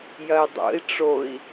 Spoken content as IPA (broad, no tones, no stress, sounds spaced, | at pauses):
j ɐ i̯ dˤ o̰ i̯ ʈ͡ʂ o i̯